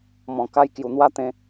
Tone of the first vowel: low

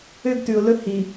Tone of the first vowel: high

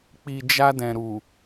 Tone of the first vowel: low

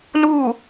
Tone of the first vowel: falling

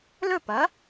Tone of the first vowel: falling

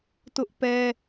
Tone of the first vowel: high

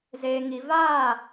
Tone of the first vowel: low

